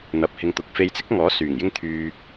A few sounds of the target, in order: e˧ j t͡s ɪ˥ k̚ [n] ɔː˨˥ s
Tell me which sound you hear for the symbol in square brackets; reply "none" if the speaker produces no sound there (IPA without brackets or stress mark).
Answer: ŋ